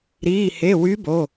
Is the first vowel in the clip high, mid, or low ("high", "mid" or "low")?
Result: high